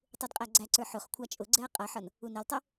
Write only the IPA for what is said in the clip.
tˤudqʼæɡ͡ǀæǀə˞ ħʊχ kʷʰɑt͡ʃʼʊɡ͡ǀɛɐ̯ qʼʌħʌn | unɛltˤʊ

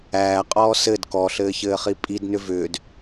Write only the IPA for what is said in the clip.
æːqʼɔː sɘd kɔɬɘːçɘːχi pʼidnʏ vʏːd

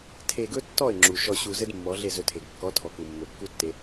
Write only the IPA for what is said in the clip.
tʰe˧ɡɵ˦tːɔ˦˨ɪ̯ŋ͡ǁu˨ ʃɔ˧ɕu˧zɘ˦d mːɔ˨˦ɮe˦˨ zɵ˧tʰe˨ɡ kːɔ˨˦ tʰɔ˨ku˨mːɵ˨ kːu˦tːe˧

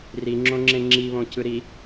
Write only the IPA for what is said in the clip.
riŋ͡ǁõŋ͡ǁẽ ŋ͡ǁiβõ cɯɾi

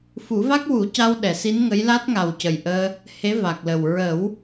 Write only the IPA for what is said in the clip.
fu˨˩˦va˦˥k̚wu˨˩˦ca˧w ɗɛ˨˩˨si˧˥nŋə˧˥j la˦˥t̚ŋa˨˩w cə˨˩jʔəː˧ | he˧˥va˨˩k̚lə˨˩w ɹə˨˩˦w

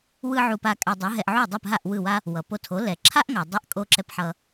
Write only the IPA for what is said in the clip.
wɯ˥ʕu˧ pa˧ kʼa˧dˤɯ˩˥ɦɛ˧ʔ ʕu˥˩dˤɯ˥˩pɦa˥˩ʔ wɯ˥˩wa˥ | wʌ˩po˧tʰo˩˥ lɛ˩ǁʰa˥ʔŋa˩dˤi˧ʔ kʼo˥ ǁɛ˥pħʌ˧

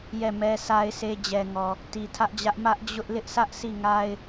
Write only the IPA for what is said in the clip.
jɛ˦˨mɛ˦sa˦ɪ̯sʰe˦ d͡ʑɛ˨ŋɔ˨ | ti˨tʰä˦ʔd͡ʑä˦ʔ mä˦ʔd͡ʑʊ˦ʔ lɪ˦ʔsʰä˦ʔ si˦˨ŋa˦ɪ̯

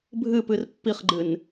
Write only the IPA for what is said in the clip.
bʱɨpɨr pːiχɡ͡ǃɨn

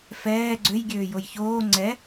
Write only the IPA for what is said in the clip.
fɛː ɡ͡ǀøj ɡʲøːjojçoː ŋ͡ǀɛ

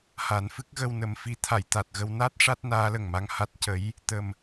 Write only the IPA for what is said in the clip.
ha˨˩˦nfɨ˦˥k̚ ɣə˧wnə˨˩˦mfi˧˥ t̪ʰa˨˩˨jt̪a˨˩t̚ɣə˧w na˦˥t̚ ʂa˦˥t̚naː˧˥lə˨˩ŋma˧ŋ ha˦˥t̚cə˧˥j | t̪ə˨˩m

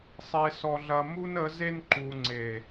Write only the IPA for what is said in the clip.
sˤe˨sɔ˨ɮɐ˨ mu˦nə˨˦ze˦n ǃu˨ŋ͡ǀe˨

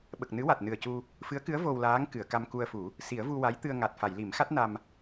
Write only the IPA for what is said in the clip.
ɓə˨˩k̚nɨ˧˥wa˨˩t̚ nɨ˨˩ə̯cu˧ | fɨ˧˥ə̯kɨ˧˥ə̯ vo˧wlaː˧˥ŋ kɨ˨˩˨ə̯ka˧mku˧ə̯fu˨˩˦ | si˨˩˦ə̯vu˧ wa˧˥jt̪ɨ˧ə̯ ŋa˨˩t̚ fa˨˩˨jli˨˩˦mxa˦˥t̚ na˧m

